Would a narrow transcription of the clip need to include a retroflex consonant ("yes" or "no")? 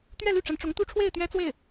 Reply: yes